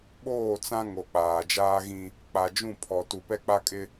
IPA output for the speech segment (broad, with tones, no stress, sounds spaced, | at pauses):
ɓ oː˦˨ t͡s ã˦ ŋ o˨ k͡p aː˨ d͡ʒ aː˦ ɣ ĩ˦ | k͡p a˨ d͡ʒ ũ˦˨ pʰ ɔ˨ t u˨ p ɛ˦ k͡p a˦ kʼ ɪ˦